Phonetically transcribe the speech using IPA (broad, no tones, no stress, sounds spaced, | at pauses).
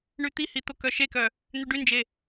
ɳ y t̪ i h i t̪ o k œ ʃ e k œ | n̪ y ɖ y n d͡ʒ e